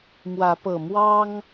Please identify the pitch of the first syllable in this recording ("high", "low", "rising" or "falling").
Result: rising